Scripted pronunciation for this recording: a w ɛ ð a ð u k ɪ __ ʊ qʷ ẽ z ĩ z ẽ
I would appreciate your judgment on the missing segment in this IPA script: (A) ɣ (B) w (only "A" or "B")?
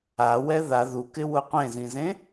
B